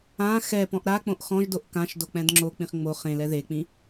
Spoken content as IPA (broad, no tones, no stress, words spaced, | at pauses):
ã xɛ pɔ̃ʔɾak͡põʔ xɔ̃ʒdoʔ kãʃdo k͡pɛ̃dŋ͡ǁok͡pĩχ ŋ͡mo χẽlɛ ðek͡pĩ